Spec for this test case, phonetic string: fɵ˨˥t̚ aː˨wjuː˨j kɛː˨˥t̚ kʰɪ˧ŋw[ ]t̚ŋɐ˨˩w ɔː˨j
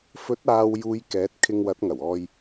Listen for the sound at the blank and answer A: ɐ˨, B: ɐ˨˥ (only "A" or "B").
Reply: B